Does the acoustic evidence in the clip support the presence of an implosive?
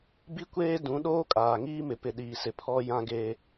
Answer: yes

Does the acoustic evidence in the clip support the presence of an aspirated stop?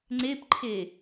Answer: yes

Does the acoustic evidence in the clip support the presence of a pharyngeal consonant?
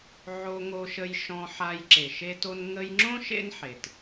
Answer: yes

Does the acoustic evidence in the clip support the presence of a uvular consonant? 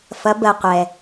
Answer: yes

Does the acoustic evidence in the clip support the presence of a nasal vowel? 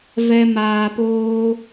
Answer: no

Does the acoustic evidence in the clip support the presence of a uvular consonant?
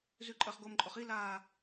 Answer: yes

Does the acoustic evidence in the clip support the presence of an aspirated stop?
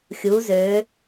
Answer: no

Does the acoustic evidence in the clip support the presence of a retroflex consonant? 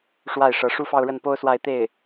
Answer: yes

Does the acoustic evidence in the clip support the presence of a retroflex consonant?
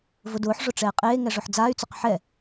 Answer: yes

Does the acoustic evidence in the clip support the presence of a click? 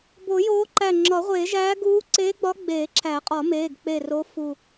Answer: yes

